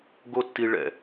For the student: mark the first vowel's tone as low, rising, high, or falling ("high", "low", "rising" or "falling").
high